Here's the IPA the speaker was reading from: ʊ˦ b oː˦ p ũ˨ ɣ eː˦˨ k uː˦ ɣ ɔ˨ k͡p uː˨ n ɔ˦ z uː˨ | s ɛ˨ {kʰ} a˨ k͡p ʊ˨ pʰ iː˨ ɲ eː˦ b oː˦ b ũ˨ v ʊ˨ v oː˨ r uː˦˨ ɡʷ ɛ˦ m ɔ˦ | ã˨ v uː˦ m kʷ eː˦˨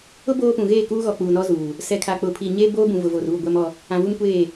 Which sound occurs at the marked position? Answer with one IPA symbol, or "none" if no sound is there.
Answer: kʰ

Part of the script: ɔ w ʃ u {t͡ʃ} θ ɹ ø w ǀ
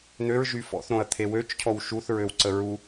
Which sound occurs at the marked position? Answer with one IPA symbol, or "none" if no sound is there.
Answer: none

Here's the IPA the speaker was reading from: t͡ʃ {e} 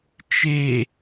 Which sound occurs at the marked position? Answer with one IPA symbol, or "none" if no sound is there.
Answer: e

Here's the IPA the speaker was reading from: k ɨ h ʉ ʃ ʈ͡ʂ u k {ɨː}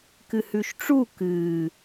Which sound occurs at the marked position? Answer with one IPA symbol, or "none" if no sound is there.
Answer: ɨː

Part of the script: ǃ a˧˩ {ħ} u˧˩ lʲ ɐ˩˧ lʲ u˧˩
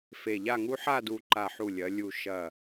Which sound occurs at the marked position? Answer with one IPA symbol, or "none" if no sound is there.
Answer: ħ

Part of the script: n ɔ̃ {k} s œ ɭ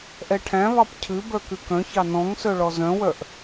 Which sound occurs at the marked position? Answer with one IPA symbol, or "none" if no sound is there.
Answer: ŋ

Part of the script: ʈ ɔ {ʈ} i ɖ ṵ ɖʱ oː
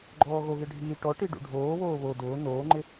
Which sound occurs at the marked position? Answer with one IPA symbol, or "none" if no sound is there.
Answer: ʈ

